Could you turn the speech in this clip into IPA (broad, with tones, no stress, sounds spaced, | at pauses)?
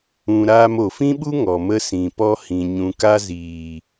ũ˨ ɾ aː˧ m o˨ f ĩ˦ ɓ u˦ ŋ ɔ˨ m ə˧ s ĩ˨ p ɔ˧ h ĩ˨ ɲ ũ˨ k a˧ z iː˨